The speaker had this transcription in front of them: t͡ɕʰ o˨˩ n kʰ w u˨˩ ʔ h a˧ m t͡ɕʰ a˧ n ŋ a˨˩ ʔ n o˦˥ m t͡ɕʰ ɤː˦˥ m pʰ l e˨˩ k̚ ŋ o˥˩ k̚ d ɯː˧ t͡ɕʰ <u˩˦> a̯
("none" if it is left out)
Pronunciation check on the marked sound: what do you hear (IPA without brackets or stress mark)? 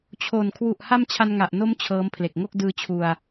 u˧